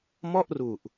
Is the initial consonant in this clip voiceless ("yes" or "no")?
no